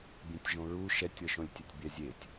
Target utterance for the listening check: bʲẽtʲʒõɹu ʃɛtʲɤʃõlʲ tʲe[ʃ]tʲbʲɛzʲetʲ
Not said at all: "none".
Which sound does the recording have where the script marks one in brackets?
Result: none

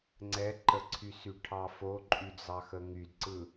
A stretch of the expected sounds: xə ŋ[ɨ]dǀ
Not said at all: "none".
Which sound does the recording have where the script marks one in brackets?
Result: y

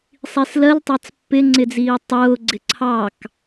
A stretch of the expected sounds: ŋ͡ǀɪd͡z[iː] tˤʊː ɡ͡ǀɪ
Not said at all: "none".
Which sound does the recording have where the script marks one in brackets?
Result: iː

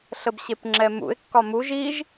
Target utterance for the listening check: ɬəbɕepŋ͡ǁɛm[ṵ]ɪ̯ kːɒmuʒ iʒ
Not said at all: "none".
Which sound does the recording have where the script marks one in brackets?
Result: ṵ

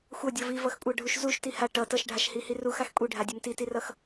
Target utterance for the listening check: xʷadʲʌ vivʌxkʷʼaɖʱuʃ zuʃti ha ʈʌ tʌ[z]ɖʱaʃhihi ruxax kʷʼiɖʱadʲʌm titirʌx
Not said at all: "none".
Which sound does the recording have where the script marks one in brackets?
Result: ʃ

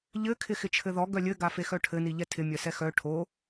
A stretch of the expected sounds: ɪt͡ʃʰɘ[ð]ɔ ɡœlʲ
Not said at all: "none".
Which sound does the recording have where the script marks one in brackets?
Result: ð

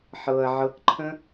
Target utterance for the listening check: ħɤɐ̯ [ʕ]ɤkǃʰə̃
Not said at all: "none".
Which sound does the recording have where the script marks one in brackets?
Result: ʕ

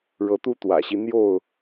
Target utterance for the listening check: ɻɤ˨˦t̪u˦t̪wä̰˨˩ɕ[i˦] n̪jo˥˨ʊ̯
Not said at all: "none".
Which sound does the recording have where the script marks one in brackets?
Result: i˦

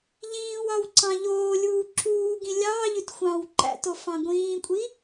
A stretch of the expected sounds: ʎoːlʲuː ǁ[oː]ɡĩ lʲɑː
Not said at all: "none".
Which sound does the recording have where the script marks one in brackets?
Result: uː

